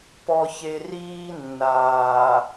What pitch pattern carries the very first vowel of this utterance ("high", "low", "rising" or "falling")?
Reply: low